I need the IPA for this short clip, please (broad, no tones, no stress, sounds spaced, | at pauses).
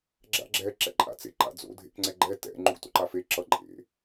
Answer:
ɡ͡ǁ a̰ ɡ͡ǁ ɛ ǁ ɛ̰ ǃʼ a̰ t͡s ḛ ǃ a̰ d͡z o̰ dʱ ḛ k ŋ͡ǀ ɛ ɡ͡ǃ ɛ t ɛ̰ ŋ͡ǃ u ɡ t o̰ ǃ a f e ǁ ʌ ǃʼ ḛ